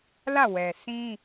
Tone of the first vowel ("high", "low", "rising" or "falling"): falling